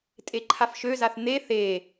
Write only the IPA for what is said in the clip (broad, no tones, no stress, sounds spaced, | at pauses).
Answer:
tʼ e ǃʰ a f ʃ ø z a θ n̪ e θ e